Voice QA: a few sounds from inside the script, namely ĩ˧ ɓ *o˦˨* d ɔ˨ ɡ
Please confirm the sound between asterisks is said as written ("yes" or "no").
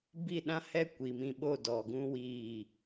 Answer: yes